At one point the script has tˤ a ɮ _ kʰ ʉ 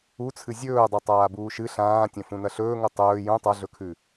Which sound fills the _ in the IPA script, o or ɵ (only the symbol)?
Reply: ɵ